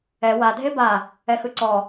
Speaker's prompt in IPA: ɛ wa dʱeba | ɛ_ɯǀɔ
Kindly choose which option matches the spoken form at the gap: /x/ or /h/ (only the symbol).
x